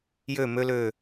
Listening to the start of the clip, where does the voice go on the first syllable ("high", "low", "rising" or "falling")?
falling